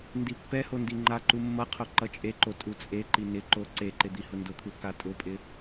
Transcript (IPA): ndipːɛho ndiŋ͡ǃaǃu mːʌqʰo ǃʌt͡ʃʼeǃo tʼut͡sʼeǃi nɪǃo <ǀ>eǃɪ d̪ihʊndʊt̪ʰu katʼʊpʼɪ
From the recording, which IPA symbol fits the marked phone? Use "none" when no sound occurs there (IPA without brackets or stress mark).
ǀ